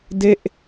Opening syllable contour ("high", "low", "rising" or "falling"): falling